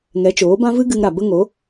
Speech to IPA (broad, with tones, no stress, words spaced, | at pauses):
ŋɛ˨˦t͡ʃoː˨˦bã˦vɨ˦ ɡɨ˧ŋɾa˨ bə˦ŋo˨˦